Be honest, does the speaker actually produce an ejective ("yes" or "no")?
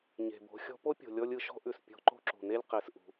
no